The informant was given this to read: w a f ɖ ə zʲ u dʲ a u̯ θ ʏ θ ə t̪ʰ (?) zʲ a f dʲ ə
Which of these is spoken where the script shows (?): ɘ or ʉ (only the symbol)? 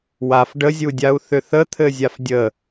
ɘ